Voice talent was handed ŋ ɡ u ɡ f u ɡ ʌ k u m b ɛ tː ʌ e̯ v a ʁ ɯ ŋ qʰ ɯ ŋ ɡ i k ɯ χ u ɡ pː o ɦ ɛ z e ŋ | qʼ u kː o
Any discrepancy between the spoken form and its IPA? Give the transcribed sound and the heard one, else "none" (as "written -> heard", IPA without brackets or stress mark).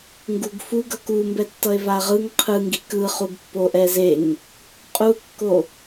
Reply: ɦ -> ʔ